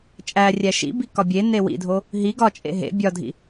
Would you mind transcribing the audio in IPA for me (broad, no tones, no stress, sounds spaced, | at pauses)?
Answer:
t͡ʃʼ æ rʲ æ ʃ ḭ b i k ɒ bʲ e n e w ḭ dʱ o | ɦ i ɡ ɒ t͡ʃʼ ḛ ɦ ḛ bʲ ɒ dʱ ḭ